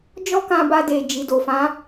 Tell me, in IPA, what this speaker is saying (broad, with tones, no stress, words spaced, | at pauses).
d͡ʒɔ˦kã˧ba˧de˨ d͡ʒi˨do˨fã˨˦